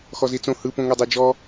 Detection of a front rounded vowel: absent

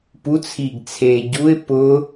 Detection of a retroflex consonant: absent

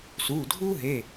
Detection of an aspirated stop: absent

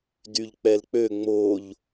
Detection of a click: absent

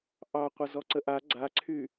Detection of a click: present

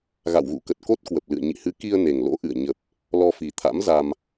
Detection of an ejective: absent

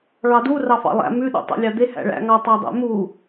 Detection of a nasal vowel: absent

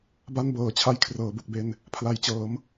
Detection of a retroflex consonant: absent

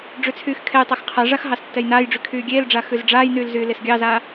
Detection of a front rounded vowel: present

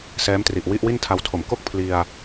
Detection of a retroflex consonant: absent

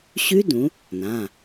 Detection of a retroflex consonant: absent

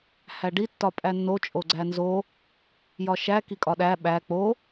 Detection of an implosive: present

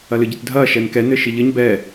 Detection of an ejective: absent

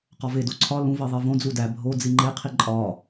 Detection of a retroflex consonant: absent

